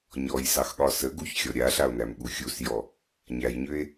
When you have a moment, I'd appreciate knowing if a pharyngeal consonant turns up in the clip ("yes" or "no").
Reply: no